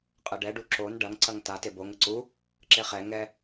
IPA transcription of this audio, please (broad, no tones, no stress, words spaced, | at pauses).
qʼɐɖɛ ɖu ǁon ɖɐŋ ǀɐŋta teboŋ ɘǀu | ǁeχɛ ŋɛ